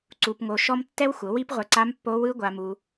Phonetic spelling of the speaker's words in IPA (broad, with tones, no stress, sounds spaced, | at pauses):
ǀ u˧ p ŋ o˧ ʃ ɔ˦ m tː ɛ˦ w xʷ ɤ˨˦ w i˦ p ʁʷ ɛ˧ ǀ a˧ m pː o˧ w ɯ˧ ɡʷ a˧ m u˧